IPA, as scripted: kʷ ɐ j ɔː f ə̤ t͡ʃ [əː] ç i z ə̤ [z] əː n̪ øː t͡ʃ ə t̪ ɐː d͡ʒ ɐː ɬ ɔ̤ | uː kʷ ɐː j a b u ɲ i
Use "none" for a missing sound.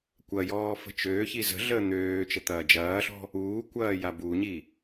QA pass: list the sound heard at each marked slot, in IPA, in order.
øː, ɮ

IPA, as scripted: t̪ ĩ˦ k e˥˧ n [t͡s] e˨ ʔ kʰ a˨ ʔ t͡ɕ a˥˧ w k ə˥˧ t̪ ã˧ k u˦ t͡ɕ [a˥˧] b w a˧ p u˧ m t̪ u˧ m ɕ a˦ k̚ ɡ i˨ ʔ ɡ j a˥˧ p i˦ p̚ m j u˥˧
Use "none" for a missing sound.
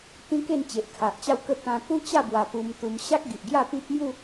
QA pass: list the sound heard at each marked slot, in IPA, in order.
t͡ɕ, a˥˧

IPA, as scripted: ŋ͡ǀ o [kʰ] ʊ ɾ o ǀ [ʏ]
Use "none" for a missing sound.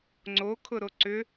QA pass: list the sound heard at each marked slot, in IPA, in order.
kʰ, ʏ

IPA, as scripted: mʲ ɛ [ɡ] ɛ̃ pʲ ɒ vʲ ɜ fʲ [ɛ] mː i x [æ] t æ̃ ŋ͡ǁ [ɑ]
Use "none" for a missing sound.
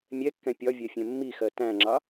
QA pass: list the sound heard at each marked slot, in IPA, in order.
kː, ɛ̃, ɜ, ɑ

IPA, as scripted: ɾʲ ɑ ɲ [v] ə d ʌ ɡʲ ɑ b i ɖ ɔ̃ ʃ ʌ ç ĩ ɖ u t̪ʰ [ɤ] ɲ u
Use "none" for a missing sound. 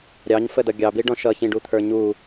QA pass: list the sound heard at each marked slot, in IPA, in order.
f, ə˞

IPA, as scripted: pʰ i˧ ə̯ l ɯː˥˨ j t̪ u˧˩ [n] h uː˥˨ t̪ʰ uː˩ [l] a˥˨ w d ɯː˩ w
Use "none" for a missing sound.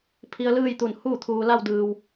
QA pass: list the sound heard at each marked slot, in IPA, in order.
n, l

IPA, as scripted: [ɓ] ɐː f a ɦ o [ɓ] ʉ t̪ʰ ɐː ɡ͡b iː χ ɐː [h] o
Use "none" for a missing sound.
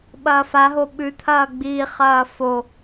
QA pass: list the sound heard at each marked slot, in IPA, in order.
ɓ, ɓ, f

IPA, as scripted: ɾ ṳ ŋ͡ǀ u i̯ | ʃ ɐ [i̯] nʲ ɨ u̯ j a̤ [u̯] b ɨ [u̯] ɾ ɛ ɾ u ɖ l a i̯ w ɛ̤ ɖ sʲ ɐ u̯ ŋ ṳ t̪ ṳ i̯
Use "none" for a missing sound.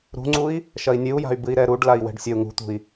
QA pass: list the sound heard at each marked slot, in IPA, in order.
i̯, y̯, i̯

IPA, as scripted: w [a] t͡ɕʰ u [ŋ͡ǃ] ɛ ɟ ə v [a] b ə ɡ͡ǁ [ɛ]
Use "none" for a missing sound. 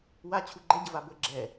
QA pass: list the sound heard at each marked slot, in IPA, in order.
a, ɡ͡ǃ, a, ɛ

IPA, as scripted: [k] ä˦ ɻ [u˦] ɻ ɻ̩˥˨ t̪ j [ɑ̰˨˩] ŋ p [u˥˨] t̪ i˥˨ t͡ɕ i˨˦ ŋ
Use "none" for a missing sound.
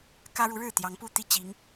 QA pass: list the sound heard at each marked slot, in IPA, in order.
k, u˨˦, ɑ˨˦, u˥˨

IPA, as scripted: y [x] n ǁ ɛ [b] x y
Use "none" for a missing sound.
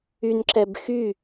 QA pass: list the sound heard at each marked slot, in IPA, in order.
none, b

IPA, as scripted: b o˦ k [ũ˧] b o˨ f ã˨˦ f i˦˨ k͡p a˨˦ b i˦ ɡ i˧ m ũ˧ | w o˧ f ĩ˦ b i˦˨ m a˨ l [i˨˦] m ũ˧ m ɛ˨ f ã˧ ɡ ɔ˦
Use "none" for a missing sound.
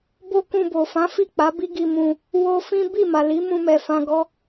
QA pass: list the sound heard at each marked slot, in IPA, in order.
ũ˧, i˨˦

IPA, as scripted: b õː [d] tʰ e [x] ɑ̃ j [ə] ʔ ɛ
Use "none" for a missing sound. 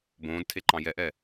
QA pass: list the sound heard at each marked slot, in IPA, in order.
d, ǃ, ɛ

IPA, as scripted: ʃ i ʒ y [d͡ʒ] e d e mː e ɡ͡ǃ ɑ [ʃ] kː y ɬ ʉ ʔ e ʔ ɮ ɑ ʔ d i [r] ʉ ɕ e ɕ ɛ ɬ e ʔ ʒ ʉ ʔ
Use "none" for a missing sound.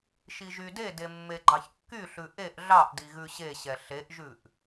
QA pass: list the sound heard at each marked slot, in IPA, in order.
d, ç, ɣ

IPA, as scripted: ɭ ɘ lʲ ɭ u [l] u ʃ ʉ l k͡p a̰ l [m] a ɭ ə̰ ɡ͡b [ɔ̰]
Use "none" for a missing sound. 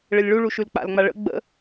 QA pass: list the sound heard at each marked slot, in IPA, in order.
ɭ, ŋ͡m, ə̰

